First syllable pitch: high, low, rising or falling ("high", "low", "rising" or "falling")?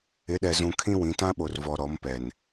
rising